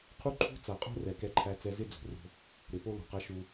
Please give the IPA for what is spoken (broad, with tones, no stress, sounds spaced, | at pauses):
qʰ u˦ ǃʰ ṳ˦ t͡s a˨ qʼ o̤˦ r ɛ˨ k ɛ˦ ǃʰ æ˦ t͡s ɛ˦ z ɪ˦ d͡z o̤˨ r o̤˦ | ɾ ɪ˨ p o˦ l o̤˨ q a˦ ʃ u˦